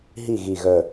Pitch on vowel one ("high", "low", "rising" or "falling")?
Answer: falling